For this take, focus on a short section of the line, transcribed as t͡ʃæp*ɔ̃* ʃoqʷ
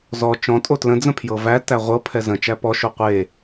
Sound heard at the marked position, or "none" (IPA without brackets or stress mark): ɔ